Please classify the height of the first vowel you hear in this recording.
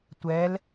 mid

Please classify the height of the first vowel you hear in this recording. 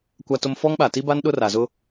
low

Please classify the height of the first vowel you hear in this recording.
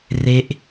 mid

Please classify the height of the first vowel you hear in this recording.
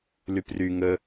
high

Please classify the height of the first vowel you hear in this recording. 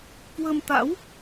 mid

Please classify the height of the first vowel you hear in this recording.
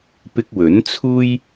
high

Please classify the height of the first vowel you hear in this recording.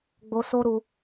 mid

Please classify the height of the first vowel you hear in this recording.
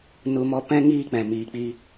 high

